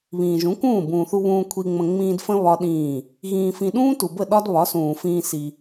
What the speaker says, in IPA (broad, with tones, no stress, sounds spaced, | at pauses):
β ĩː˨ ʒ ũ˨˦ k ũː˦˨ b ũː˨ θ u˧ β ũː˧ kʷʰ i˧ ŋ͡m ə̃˧ ŋ͡m ĩː˧ d f ə̃˦ β ɒ˦ ɗ ĩː˦˨ | ɣ ĩː˧ f ĩ˧ ɗ ũː˦ t u˨ b ə˦˨ ɗ ɒ˦ d β ɒ˨˦ s ũː˨ f ĩː˧ s i˧